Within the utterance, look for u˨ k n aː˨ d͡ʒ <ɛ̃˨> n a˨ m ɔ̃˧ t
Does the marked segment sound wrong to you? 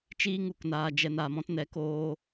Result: yes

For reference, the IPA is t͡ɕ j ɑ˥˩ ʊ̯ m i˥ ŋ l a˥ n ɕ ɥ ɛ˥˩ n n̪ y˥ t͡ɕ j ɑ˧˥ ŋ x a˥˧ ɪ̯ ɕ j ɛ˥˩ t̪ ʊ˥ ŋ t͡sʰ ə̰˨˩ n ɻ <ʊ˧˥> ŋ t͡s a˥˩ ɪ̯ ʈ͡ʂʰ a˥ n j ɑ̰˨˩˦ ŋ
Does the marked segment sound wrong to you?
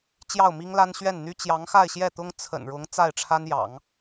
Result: no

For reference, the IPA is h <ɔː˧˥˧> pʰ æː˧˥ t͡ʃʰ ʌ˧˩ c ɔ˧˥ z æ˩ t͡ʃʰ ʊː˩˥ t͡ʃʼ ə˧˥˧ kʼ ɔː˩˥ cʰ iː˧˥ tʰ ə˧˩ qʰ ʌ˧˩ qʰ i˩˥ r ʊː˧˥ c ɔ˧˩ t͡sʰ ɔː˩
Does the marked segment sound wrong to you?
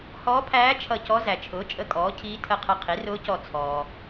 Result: yes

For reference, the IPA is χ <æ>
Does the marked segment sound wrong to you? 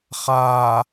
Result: yes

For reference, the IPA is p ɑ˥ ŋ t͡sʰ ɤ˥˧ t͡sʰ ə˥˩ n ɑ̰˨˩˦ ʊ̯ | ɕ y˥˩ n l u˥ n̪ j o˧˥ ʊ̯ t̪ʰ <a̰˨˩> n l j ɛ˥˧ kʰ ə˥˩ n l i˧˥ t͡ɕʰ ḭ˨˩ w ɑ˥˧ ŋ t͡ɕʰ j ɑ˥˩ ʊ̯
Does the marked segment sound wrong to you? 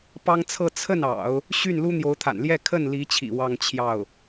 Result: no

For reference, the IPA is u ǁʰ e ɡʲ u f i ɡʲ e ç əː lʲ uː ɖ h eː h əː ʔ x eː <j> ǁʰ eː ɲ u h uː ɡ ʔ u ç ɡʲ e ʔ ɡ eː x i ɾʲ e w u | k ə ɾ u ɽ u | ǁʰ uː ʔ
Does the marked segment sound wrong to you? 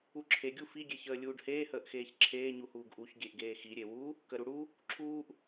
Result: yes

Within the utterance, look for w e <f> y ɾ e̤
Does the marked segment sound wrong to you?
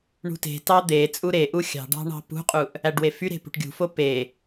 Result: no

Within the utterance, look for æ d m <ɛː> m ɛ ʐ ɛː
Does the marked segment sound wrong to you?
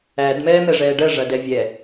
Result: no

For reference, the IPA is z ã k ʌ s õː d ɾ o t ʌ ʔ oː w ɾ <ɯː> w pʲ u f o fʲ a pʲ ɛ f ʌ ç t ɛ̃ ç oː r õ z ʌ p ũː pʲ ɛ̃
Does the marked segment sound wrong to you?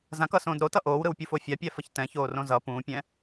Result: yes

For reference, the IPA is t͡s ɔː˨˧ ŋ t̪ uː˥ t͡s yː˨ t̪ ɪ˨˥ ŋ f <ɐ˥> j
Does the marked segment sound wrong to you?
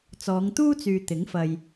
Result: yes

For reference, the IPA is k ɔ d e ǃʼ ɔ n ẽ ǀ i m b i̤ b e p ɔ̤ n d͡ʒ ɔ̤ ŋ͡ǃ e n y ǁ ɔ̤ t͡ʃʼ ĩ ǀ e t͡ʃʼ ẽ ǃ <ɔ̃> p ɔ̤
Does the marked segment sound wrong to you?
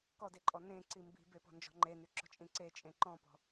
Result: no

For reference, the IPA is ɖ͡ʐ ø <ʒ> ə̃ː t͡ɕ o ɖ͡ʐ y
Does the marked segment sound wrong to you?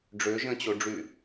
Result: no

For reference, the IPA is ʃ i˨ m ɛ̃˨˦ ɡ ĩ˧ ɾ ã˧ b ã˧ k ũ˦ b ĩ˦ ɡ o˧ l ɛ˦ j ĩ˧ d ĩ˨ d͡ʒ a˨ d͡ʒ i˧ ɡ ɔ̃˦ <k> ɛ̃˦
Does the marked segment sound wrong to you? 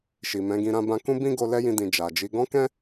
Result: no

